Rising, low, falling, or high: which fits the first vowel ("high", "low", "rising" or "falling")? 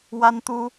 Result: high